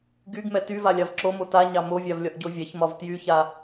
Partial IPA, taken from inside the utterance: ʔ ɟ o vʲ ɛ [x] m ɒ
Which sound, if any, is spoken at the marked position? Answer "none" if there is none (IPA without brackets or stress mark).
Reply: ç